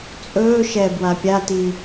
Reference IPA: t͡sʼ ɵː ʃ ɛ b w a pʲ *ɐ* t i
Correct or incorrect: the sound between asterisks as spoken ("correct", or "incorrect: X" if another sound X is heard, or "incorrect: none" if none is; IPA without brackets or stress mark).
incorrect: a